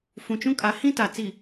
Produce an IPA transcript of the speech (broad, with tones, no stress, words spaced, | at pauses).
fũ˨t͡ʃũ˦kʼa˨˦ hĩ˦ta˨ t͡si˨